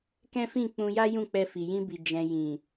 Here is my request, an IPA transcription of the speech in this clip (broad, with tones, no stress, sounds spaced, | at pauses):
k ɛ̃˦ f ĩ˦˨ k͡p ũ˧ j a˦ j ũ˦˨ k͡p ɛ˧ f i˨ j ĩ˧ b i˨ d͡ʒ ɛ̃˧ j ĩ˨